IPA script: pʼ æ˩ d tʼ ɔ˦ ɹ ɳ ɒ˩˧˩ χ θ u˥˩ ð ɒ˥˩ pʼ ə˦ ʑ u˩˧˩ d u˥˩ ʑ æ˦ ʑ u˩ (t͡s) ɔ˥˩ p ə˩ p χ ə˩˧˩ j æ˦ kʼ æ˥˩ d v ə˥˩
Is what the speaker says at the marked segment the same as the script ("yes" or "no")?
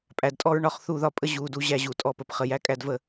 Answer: no